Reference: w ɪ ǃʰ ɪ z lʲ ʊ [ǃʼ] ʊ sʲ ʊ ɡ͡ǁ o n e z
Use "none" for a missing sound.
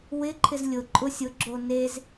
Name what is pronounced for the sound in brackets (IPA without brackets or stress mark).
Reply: ǃʼ